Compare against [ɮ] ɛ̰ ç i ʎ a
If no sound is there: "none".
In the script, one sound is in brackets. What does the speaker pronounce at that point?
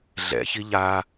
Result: ɮ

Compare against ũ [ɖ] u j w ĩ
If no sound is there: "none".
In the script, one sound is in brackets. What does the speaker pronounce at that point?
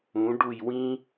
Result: ɖ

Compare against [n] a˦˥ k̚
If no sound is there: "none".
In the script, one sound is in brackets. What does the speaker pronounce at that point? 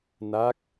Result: n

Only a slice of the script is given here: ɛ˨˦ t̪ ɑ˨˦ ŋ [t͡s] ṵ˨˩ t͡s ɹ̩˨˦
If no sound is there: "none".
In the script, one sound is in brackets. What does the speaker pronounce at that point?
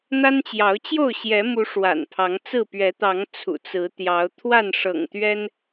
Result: t͡sʰ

